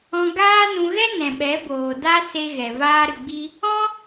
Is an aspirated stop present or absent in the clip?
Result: absent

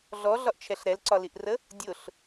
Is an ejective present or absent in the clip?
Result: absent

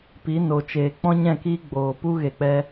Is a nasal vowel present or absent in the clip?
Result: present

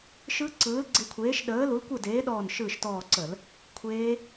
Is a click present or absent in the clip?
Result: present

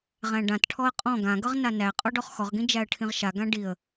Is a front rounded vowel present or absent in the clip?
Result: absent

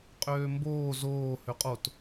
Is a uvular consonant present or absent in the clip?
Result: present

